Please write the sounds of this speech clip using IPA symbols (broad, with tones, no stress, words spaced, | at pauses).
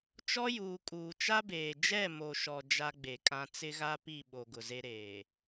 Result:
t͡ʃɔ˦juː˨ kʼuː˨t͡ʃa˦beː˨ d͡ʒɛ˦˨mo˨ʃɔ˨ d͡ʒa˦ɡ͡be˨kʼã˦ t͡sɪ˦ɣa˦pi˦˨ ɓo˨ɡʊ˨ze˦ ɾeː˨